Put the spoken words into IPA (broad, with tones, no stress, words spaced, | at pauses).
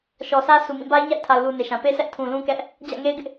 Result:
ʃɔ˨sʰä˦ sʰu˨mĩ˦˨ ba˦ɪ̯ɲa̰˦˨ɪ̯tʰa˨ʊ̯ lu˨ ne˨ʃã˨ pe˦sʰɛ˦ʔ tʰũ˨lũ˦ kɛ˦ʔ | d͡ʑä̰˦˨ŋe˦ɪ̯ ɡɪ˦ʔ